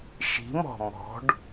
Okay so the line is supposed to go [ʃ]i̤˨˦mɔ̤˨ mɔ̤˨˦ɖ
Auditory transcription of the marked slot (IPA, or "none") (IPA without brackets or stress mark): ʃ